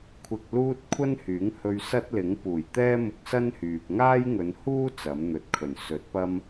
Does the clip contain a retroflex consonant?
no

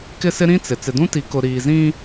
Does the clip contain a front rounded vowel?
no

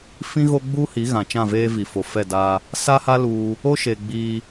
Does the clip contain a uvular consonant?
no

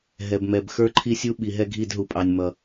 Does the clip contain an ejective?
yes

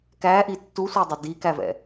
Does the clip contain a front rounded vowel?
no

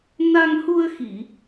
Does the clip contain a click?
no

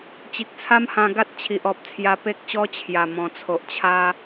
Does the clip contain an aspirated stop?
yes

